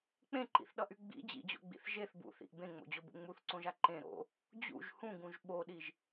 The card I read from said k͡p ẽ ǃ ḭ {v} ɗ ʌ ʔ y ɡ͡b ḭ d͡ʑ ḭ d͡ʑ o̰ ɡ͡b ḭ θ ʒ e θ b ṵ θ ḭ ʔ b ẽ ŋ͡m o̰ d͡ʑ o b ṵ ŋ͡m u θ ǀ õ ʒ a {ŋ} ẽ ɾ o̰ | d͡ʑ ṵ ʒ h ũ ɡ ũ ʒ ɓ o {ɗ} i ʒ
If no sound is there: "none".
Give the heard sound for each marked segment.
θ, ǃ, ɗ

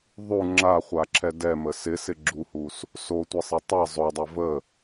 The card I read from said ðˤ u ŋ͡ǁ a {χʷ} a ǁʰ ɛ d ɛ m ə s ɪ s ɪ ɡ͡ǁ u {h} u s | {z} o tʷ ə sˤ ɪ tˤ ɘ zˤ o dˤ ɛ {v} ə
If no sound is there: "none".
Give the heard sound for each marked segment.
χʷ, h, s, v

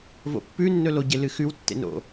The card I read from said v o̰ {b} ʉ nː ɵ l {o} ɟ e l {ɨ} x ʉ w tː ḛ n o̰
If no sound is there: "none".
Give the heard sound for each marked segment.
pː, o, ɨ

